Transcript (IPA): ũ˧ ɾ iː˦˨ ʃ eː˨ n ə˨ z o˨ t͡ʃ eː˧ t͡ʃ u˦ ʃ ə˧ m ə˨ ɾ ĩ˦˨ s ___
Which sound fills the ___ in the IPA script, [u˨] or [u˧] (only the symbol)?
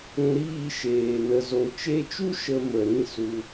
u˧